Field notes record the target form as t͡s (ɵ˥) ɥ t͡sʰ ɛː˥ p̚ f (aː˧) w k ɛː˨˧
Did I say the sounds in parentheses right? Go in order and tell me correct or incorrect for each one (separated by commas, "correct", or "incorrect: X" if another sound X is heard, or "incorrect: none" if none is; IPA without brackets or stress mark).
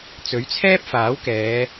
incorrect: ɵ˨˥, incorrect: aː˨˥